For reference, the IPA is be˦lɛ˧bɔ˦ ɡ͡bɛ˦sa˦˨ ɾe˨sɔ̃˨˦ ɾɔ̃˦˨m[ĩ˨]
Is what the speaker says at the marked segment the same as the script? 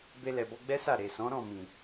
yes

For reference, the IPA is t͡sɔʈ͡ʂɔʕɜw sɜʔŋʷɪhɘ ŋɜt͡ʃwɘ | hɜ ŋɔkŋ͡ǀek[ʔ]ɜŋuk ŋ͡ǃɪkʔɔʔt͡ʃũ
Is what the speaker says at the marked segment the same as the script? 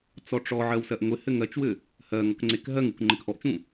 no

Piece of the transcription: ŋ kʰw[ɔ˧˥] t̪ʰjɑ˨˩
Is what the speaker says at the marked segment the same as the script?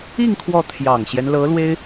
no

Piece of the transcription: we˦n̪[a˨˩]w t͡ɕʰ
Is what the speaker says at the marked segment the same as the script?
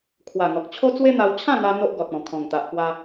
no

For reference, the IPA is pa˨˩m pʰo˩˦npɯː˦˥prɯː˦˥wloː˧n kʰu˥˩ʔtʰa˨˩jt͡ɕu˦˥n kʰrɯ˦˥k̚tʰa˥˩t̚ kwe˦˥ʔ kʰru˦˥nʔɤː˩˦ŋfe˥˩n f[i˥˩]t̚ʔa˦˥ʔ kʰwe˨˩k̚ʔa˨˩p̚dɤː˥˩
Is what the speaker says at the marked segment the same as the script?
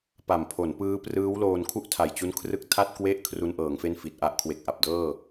no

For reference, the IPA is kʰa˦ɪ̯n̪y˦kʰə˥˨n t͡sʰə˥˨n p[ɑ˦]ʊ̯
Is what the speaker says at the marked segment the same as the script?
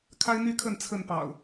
no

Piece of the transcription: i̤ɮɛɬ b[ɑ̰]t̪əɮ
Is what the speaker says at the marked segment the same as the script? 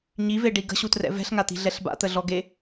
no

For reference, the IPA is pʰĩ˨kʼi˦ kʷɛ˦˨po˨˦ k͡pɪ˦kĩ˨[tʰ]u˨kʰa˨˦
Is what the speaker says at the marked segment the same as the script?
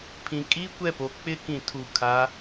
yes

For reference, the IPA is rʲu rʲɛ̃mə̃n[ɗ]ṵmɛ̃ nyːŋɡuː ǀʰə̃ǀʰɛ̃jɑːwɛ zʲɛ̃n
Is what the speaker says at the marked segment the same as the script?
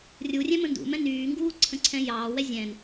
no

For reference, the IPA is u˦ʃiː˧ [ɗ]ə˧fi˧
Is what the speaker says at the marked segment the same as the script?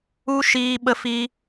no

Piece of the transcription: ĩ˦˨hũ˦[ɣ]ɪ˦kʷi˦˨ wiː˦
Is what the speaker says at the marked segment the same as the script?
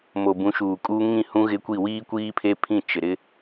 yes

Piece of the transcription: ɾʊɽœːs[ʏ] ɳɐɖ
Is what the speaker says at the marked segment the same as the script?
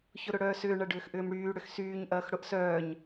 no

